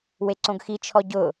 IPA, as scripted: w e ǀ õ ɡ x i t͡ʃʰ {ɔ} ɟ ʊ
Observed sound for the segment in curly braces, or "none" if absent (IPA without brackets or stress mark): ɔ